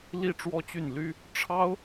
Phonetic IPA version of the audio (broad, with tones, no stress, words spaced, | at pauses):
li˥˩ ʈ͡ʂwɔ˥t͡ɕy˥˩n ly˥ | ʈ͡ʂʰɑ˥ʊ̯